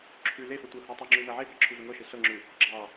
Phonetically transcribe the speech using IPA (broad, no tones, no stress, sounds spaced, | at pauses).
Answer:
ǁʰ ʉ l e f ɤ tʷ ɤ h ɤ tˤ ʉ ŋ͡ǁ ʉ n ɤ ʕ e b ɑ ǁʰ ʉ v ɘ ŋ ɤ ʃ e ɬ ɤ ŋ͡ǁ ʉ | ɡ͡ǁ ɑ